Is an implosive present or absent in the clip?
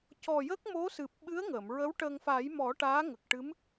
present